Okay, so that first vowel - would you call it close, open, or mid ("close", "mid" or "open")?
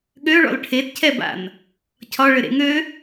mid